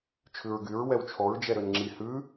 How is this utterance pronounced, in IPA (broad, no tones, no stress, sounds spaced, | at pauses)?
t͡ʃʰ ʉ ɹ ɡ y ɹ w ɛ w t͡ʃʰ ɔ ɹ d͡ʒ ɛ ɾ ø n ŋ͡ǁ i h ʉ